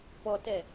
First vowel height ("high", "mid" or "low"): mid